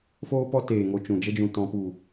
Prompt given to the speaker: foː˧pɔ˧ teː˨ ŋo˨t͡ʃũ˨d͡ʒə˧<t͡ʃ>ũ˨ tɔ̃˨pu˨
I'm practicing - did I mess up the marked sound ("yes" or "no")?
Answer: yes